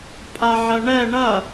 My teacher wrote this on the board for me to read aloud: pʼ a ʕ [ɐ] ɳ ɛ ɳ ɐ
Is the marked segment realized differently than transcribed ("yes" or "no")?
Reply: no